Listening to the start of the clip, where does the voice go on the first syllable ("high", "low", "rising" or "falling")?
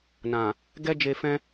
low